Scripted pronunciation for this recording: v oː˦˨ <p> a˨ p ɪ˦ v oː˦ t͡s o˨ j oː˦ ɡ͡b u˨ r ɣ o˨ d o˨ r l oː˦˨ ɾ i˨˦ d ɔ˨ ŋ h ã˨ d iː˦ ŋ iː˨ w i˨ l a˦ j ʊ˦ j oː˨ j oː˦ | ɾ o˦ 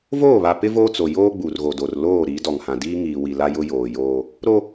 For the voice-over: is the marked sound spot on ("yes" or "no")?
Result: no